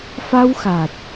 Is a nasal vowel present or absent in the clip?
absent